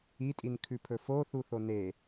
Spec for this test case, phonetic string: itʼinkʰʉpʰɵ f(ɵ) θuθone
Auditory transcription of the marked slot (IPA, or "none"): o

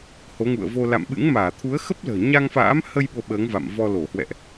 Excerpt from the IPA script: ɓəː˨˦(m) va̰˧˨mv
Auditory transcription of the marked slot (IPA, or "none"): ŋ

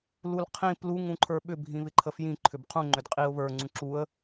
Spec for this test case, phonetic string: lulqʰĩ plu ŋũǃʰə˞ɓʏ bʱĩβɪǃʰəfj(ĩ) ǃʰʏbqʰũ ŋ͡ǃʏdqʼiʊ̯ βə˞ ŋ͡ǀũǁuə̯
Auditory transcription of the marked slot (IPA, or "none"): ĩ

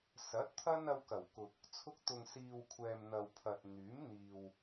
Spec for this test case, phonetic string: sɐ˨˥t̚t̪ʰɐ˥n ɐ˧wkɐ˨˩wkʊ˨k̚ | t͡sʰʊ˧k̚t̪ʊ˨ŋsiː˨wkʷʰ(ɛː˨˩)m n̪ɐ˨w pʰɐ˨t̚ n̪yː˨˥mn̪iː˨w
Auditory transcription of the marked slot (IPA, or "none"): ɛː˨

